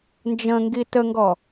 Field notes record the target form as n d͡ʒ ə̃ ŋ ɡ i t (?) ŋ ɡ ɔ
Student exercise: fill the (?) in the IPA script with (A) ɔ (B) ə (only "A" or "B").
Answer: B